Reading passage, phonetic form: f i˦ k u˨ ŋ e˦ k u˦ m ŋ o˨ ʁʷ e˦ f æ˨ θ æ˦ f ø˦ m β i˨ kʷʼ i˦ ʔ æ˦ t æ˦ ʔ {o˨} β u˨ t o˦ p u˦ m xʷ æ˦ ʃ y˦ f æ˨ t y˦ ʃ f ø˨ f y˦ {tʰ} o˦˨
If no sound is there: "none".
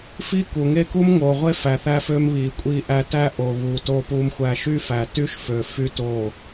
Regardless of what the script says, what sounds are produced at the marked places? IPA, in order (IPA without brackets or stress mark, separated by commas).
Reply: o˨, t